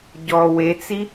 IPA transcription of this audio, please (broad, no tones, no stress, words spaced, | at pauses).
ɟɔ wet͡si